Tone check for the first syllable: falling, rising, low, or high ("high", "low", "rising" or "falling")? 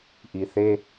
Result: low